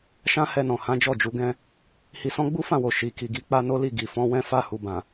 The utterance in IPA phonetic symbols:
ʃ ã˦ h ɛ˧ n ɔ̃˨ h ã˨˦ d͡ʒ ɔ˦˨ d͡ʒ u˨˦ ɡ ɛ̃˦ | h i˧ s ɔ̃˦ ɡ͡b u˦ f ã˦˨ w o˨ ʃ i˨ k i˨ ɡ i˨˦ k͡p a˦ n o˦ l i˦˨ ɡ i˨ f ɔ̃˨˦ w ɛ̃˦ f a˧ h u˨ b ã˨

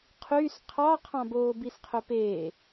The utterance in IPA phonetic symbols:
qʰ y s qʰ ɑ qʰ ɑ̃ b oː b i s qʰ ɵ p eː

